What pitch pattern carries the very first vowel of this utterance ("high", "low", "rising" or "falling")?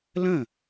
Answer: falling